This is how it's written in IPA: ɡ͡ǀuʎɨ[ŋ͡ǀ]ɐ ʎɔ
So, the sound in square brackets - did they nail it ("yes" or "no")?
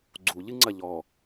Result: yes